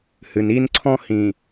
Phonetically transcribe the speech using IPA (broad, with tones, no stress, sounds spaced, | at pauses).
h ɨ˨ n i˦ n ǀʰ ɔ̃˦ h ĩ˨